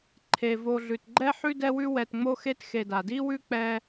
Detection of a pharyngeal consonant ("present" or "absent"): present